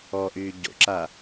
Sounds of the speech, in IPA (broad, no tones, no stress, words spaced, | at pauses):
ɔʔyː ɟo̰ǁa